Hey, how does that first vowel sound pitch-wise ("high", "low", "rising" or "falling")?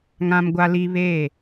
high